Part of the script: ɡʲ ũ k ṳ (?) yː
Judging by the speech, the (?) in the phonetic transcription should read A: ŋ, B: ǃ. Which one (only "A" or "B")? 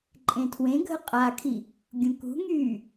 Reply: A